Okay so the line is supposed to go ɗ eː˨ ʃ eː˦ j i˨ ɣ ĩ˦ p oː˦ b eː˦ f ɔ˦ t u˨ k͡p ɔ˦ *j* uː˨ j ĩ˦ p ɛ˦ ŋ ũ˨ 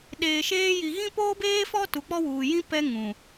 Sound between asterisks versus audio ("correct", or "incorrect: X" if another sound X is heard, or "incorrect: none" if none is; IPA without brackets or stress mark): incorrect: w